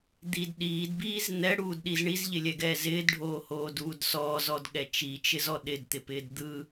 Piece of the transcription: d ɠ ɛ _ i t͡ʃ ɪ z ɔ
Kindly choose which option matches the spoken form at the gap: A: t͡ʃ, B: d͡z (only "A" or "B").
A